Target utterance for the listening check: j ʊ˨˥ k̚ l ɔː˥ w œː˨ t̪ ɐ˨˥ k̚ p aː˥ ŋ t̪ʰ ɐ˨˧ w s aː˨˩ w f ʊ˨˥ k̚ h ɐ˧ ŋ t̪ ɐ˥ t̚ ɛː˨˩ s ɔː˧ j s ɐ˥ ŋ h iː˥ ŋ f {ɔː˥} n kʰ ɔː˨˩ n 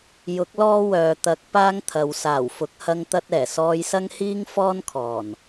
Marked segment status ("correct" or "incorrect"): correct